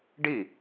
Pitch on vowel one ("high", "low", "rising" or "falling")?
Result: falling